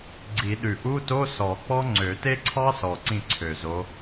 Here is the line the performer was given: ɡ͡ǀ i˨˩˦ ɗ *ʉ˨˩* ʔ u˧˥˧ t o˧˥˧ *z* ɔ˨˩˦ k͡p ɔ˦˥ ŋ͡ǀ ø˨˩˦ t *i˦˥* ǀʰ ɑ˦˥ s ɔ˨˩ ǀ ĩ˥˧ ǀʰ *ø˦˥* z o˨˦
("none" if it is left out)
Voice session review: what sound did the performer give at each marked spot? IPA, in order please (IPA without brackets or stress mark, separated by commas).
ʉ˨˩, s, e˦˥, ø˨˩